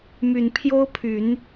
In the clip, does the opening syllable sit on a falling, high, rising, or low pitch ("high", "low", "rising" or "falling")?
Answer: low